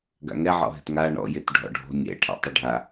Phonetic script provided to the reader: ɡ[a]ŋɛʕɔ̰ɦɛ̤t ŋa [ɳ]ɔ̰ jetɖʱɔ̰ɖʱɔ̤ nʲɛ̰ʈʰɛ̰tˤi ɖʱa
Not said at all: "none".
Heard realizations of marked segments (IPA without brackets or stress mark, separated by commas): a̰, ɳ